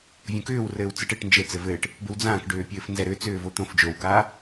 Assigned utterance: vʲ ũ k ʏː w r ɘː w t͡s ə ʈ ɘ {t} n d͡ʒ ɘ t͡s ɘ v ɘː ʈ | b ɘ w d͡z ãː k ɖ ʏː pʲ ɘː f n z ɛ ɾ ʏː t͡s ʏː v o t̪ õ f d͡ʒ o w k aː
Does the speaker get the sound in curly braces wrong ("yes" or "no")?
yes